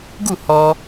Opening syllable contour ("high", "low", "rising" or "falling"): falling